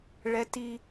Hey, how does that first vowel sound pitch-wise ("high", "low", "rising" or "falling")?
high